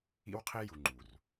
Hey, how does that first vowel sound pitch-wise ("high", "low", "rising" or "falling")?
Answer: high